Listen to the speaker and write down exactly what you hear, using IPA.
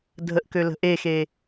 dʱ ə ʔ k ø l ə̤ ʔ e x e

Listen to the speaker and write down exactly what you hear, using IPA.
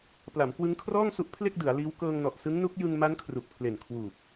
p l a˩˦ m k w ɯ˦˥ ŋ kʰ r ɔː˥˩ ŋ s u˦˥ ʔ pʰ l e˥˩ k̚ d ɯ˩˦ a̯ l iː˦˥ w k ɤː˧ ŋ n ɔ˨˩ ʔ s ɯ˦˥ ŋ n u˦˥ k̚ j ɯ˧ ŋ m a˦˥ n kʰ r u˨˩ k̚ pʰ l e˨˩ n kʰ w uː˨˩ p̚

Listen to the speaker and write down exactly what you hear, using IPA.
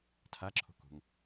tʰ a ǁʰ o̤ k o̤ ŋ

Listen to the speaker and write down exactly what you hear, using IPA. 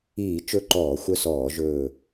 iː˧˩˧ t͡ʃ ɵ˦˨ ǃ ɔː˧˩˧ xʷ œ˦˨ s ɔː˧˩˧ ʒ ɵː˦˨

